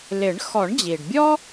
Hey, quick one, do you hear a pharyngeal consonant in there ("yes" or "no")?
no